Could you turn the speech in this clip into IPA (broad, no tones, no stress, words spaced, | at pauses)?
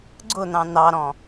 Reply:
ɡ͡ǀʊn̪ɑ̃ n̪ɑɾɔ̃